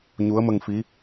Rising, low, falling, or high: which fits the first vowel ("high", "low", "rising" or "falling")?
rising